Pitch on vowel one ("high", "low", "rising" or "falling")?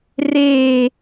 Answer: falling